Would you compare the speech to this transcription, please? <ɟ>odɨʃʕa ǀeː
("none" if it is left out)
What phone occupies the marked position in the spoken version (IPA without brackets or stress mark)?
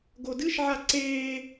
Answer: ɡ